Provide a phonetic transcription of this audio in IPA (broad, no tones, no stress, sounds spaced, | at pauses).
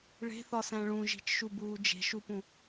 ɭ e̤ θ ɒ s æ̃ ɭ ũ ʒ i̤ t͡ʃ ʃ u b uː d͡ʒ e̤ ʃ u p ũ